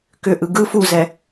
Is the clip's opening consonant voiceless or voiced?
voiceless